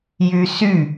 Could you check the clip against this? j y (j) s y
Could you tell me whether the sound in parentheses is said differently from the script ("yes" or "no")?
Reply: yes